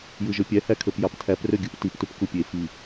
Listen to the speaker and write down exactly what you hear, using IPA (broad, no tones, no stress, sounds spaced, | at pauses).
j ɯ ʒ ø pʲ æ h æ kʰ ø p j ɑ p tʰ æ p r ø ɡʲ ɯ p t i p t u p k u pʲ e f i